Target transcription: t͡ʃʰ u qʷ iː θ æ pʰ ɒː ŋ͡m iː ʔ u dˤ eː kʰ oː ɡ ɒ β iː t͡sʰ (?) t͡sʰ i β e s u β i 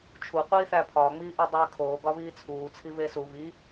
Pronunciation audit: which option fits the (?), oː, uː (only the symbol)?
uː